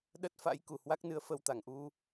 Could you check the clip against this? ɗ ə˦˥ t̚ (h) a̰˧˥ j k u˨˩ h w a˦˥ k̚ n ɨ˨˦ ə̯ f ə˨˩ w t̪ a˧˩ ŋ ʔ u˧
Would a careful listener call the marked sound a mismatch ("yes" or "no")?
yes